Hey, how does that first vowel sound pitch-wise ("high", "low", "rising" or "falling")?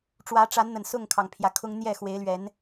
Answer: rising